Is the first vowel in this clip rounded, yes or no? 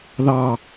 no